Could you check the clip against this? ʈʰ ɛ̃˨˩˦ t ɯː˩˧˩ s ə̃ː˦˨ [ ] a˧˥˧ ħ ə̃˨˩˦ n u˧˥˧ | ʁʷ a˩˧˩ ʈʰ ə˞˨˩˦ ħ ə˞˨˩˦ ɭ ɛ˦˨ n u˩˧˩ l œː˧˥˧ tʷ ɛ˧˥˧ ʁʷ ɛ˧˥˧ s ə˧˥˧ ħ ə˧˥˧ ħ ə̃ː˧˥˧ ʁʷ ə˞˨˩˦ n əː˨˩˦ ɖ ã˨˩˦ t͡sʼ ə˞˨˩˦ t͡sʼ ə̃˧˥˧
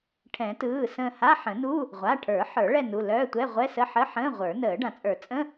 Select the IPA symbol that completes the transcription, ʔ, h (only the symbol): h